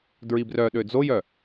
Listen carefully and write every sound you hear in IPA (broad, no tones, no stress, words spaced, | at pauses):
dɹibrœɗø d͡zojœ